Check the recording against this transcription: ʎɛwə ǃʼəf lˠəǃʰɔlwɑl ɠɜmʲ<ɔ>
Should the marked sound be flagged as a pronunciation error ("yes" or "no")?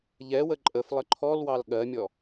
no